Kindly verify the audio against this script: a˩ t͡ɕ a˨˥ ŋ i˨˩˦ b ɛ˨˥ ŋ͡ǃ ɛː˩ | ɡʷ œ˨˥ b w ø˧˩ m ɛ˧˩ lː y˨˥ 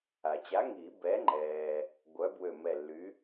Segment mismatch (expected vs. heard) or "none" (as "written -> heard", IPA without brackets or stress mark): none